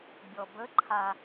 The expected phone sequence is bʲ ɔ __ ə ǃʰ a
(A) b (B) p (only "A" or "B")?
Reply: A